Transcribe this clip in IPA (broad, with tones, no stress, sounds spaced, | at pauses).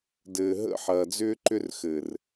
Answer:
d ɘː˨ ɦ ə̰˦˨ ħ ɐː˨ d͡z ʏː˦ ǃ ʏ˦ r x ɘ˨ r